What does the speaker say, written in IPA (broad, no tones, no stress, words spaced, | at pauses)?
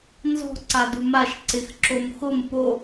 nzɔ̤ ǀadumaʃ ǀɪx ǁomxʊm po